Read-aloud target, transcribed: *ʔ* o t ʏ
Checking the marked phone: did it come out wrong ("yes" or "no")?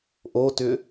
no